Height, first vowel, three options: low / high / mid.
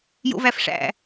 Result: mid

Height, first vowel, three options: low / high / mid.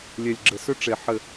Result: mid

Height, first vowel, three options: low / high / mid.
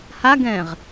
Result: low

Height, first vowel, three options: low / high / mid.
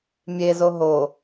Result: mid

